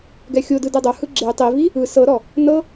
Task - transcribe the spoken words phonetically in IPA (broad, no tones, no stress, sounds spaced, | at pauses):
ɡ ɛ xʲ o d ɯ d e dˤ o h ɯ ɡ͡ǁ e tˤ i v i | ɯ s ɤ ɾ ɔ | n ɤ